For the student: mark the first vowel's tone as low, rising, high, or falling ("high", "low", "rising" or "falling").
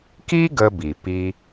high